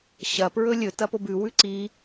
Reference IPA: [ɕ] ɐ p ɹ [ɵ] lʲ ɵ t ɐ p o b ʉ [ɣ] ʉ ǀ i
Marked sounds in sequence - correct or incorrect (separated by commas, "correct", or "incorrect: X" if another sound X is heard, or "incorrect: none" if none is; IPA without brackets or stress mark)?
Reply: correct, correct, incorrect: w